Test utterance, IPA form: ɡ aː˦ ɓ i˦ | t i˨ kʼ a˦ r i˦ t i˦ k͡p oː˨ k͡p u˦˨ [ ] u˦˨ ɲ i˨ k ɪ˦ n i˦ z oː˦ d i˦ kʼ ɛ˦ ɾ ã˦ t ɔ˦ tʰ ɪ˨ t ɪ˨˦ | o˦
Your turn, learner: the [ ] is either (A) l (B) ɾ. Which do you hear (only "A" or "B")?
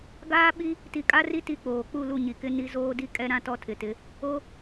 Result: A